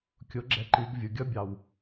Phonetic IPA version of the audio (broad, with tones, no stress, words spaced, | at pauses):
kʲʊ˨˥ɡ͡ǁɛ˨˥ǃi˩˧ɡ vʲʊ˩ɡʲʌ˦˥ bʲɑ˩w